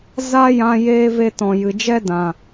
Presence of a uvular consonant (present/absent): absent